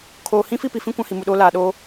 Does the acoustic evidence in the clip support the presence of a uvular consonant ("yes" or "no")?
no